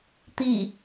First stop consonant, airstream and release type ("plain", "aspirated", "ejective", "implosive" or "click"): plain